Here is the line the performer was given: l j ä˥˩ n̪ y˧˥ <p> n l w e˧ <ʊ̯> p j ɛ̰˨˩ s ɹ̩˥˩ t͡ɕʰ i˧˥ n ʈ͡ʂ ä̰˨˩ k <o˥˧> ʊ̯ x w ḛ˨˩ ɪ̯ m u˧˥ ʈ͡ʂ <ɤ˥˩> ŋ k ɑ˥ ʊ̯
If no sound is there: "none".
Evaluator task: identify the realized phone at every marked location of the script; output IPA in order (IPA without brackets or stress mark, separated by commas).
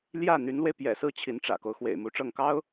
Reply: none, ɪ̯, o˦, ɤ˥˩